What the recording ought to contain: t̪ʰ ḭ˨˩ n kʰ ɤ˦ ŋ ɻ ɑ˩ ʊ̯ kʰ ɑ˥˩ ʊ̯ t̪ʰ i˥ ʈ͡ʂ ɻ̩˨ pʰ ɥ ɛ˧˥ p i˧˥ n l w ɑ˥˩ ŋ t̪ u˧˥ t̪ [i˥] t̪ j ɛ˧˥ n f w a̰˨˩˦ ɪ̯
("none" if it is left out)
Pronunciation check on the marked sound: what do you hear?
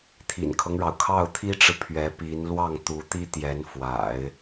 i˥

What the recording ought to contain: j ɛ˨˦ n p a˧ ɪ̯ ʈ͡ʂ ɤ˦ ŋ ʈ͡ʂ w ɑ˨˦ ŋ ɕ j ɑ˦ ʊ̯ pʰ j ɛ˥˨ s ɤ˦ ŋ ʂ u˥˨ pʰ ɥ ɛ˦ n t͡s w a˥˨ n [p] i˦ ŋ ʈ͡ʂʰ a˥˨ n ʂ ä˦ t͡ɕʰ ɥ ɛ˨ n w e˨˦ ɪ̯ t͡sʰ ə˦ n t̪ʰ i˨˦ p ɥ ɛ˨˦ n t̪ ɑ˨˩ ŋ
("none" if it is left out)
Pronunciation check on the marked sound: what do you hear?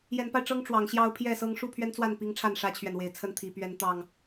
p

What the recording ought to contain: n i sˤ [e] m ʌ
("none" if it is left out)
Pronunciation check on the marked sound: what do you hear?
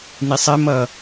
e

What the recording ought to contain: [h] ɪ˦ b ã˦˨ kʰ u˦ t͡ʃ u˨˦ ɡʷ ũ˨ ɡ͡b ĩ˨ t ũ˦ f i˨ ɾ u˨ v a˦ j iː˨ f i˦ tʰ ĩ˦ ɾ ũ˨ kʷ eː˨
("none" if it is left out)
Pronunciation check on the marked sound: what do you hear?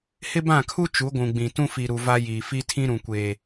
h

